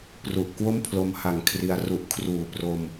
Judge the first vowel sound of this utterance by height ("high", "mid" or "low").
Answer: high